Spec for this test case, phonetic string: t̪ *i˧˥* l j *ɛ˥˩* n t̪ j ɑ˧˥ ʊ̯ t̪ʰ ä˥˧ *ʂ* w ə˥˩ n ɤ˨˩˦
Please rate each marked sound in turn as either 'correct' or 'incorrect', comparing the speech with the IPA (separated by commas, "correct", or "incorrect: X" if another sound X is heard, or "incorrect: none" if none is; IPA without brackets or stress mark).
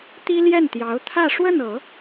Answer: incorrect: i˥, correct, correct